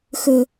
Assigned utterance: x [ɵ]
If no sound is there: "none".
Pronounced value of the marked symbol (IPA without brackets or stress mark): ɵ